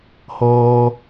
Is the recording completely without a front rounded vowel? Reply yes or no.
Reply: yes